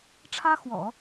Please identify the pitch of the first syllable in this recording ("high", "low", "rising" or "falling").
high